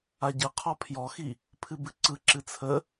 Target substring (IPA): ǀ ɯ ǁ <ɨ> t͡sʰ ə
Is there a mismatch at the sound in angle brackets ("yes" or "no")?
no